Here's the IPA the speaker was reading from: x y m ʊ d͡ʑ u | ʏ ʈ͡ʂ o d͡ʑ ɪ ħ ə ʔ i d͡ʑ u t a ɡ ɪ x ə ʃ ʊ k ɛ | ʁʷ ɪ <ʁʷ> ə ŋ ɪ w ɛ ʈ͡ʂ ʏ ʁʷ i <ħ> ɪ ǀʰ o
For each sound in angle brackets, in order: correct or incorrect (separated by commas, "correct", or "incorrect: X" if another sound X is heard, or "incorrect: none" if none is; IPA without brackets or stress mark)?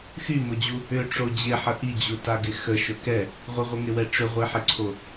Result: correct, correct